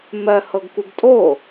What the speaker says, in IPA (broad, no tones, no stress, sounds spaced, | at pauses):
m ɜ h ɤ ɡ k u ɡ tʼ o